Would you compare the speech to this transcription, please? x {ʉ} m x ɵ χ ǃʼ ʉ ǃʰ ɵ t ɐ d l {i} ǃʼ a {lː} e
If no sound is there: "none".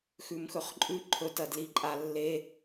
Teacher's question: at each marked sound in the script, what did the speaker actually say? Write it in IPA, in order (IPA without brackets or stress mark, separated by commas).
ʉ, i, lː